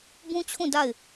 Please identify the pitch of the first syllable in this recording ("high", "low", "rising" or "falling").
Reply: high